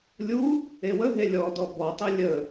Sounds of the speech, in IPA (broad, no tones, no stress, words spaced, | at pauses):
lʲu | ewəɦe lʲɔdɔ bɔtˤə lʲə